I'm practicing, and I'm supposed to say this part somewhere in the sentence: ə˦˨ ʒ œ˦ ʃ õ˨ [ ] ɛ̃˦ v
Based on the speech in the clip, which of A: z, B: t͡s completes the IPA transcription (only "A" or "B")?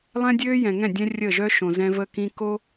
A